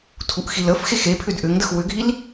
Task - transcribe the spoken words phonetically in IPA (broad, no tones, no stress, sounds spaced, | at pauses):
tʰ u ʔ x i l ə f x e x e pʰ ʏ d ʔ ʏ ŋ d ə x w ʏ ɡʱ i l